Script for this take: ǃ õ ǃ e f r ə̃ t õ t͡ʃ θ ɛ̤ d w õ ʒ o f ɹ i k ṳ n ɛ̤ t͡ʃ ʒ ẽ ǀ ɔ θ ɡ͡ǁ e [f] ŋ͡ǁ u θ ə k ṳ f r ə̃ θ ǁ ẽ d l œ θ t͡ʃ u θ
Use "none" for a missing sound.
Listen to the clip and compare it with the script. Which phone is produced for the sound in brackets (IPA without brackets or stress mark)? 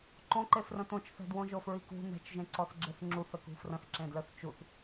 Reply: θ